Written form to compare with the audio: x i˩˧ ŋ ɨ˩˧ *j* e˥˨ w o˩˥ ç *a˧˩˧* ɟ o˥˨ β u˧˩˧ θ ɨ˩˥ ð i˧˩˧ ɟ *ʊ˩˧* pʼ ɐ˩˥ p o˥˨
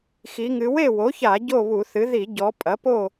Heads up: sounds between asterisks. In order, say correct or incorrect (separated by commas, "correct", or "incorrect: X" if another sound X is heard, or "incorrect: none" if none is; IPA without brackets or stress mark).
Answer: incorrect: w, correct, incorrect: ɔ˩˧